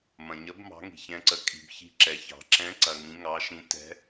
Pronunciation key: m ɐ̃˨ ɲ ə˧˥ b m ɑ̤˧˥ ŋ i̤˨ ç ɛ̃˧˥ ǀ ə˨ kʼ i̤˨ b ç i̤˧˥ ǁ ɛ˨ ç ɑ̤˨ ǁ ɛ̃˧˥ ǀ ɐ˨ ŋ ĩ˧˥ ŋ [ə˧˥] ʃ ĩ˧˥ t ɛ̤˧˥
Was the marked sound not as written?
yes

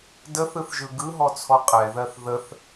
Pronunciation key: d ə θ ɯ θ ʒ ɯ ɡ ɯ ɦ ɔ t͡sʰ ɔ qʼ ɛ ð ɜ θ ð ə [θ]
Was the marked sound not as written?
no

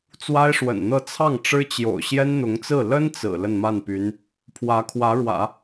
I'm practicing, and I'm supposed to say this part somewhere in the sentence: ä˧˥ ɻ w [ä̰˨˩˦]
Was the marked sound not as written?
no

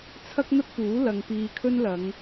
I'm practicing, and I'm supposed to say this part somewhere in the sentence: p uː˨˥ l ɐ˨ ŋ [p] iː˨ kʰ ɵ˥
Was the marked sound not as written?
no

